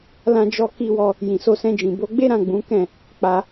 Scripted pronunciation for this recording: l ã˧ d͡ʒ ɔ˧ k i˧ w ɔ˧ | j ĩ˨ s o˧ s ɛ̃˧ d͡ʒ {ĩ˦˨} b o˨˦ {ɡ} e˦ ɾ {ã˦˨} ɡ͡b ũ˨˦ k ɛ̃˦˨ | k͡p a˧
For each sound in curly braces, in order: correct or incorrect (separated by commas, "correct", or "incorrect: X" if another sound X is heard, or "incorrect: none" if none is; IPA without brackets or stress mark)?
incorrect: ĩ˨, incorrect: ɡ͡b, correct